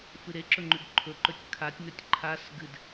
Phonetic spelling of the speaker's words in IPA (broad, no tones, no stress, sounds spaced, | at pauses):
f ɨ ɾ e ǁ ɵ ŋ͡ǃ ʉ ɡ ǃʰ ɵ ǃ ɵ tʲ kʰ a tʲ n ɵ tʲ ǃʰ a s ɡ ɨ d